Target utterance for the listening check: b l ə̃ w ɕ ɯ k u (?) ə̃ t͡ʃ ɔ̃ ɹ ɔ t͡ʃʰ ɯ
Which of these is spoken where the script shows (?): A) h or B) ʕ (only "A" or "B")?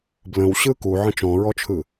B